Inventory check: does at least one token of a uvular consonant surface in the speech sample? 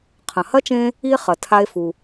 yes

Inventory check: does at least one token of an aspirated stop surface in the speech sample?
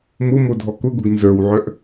no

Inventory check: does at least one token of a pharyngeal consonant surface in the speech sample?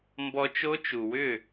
no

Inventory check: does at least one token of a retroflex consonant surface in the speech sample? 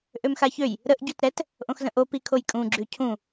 no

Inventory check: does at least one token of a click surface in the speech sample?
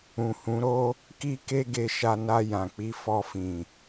no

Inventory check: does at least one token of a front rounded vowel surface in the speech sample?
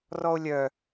yes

